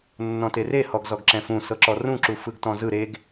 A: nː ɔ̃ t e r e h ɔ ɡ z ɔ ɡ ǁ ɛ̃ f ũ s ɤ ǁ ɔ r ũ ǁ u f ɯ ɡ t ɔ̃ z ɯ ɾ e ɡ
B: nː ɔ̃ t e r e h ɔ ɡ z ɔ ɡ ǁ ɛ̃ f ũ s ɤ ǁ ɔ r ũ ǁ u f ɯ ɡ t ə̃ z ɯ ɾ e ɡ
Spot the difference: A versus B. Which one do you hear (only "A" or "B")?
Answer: A